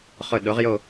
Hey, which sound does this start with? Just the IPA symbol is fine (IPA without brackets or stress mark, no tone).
χ